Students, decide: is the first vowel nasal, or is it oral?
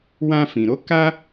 nasal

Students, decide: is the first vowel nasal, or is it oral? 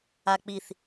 oral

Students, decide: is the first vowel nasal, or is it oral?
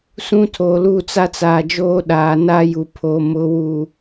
nasal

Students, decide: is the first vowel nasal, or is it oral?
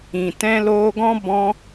nasal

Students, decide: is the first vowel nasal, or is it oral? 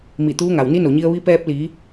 oral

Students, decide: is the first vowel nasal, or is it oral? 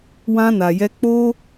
nasal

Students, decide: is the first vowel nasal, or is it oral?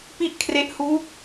oral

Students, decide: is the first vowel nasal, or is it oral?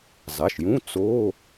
oral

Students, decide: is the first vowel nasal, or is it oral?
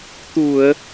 oral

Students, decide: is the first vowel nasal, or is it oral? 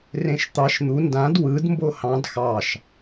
nasal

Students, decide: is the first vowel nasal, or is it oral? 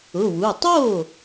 oral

